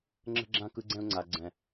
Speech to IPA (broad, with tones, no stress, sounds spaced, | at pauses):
ŋ͡ǁ ə̤˧ ɡ͡ǁ ã˧ k ɯ˧ ɡ͡ǀ ɛ̃˧ ʊ̯ ŋ͡ǀ a˨ ɡ͡ǀ ɛ̃˨